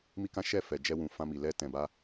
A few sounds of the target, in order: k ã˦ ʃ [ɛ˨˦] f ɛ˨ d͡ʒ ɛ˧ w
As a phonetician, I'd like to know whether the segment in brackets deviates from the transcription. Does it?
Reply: yes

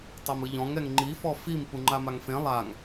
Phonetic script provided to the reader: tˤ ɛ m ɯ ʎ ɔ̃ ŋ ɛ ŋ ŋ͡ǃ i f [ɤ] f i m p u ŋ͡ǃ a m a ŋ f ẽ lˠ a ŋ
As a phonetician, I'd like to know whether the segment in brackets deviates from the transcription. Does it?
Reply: yes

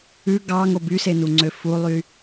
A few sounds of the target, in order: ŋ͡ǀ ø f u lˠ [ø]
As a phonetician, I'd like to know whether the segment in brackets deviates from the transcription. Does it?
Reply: yes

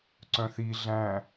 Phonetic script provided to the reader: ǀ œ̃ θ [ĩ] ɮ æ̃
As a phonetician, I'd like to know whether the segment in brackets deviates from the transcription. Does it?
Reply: yes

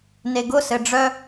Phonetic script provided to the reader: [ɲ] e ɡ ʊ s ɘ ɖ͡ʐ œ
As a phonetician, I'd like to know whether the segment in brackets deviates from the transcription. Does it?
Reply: yes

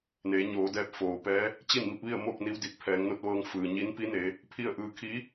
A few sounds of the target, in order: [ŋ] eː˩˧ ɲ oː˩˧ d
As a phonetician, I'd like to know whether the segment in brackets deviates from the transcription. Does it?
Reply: yes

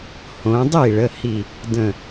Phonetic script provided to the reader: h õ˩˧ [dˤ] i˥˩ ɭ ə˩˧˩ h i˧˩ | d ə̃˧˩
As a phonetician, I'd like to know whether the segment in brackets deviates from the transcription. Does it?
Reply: no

